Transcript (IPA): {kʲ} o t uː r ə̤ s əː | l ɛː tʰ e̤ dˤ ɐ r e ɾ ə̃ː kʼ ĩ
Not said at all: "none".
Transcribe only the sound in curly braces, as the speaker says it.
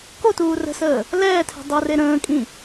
k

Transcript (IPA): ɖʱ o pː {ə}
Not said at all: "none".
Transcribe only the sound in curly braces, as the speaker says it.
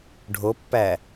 æ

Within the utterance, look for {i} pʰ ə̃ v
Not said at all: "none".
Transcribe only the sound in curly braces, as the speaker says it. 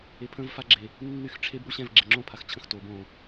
e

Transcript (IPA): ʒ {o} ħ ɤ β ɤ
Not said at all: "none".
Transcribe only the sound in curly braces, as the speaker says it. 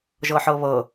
ɤ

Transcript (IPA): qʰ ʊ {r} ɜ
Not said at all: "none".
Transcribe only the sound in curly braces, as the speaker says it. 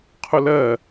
l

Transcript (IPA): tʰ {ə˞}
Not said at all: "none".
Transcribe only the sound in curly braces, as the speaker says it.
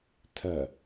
ɜ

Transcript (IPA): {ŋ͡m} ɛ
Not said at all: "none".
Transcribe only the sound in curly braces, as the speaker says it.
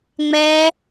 ŋ͡m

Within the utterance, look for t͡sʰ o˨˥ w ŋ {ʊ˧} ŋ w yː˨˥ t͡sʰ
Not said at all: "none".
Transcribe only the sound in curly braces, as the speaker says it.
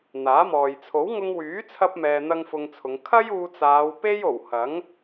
ʊ˧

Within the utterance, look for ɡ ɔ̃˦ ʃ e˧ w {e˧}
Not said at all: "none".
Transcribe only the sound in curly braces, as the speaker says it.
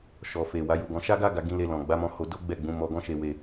e˧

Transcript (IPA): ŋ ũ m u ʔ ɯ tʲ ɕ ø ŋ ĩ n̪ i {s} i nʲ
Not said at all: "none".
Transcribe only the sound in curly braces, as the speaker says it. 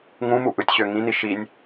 ʃ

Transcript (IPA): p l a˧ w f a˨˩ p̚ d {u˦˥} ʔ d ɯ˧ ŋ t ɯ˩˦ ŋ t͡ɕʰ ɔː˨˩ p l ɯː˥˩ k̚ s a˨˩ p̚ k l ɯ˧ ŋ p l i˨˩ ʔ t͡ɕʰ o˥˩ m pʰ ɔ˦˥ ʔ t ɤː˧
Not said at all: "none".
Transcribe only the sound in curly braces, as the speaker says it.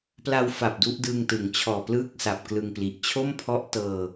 u˦˥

